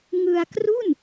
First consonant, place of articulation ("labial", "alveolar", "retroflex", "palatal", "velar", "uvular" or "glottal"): velar